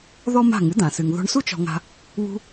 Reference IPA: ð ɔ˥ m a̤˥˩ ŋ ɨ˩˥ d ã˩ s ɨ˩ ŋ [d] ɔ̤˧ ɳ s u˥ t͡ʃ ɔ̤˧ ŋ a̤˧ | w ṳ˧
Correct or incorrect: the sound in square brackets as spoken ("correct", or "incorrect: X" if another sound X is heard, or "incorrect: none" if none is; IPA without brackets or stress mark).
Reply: incorrect: ð